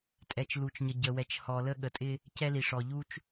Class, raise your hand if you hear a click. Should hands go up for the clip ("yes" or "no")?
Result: no